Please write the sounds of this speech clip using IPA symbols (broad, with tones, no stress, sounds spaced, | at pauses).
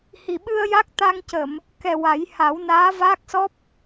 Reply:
h i˨˩ ɓ ɨ˧ ə̯ j a˦˥ k̚ t̪ a˧ ŋ c ə˨˩˨ m | k ɛ˨˩ w a˨˩˦ j h a˨˩˦ w n aː˧˥ v aː˦˥ k̚ s ɔ˦˥ p̚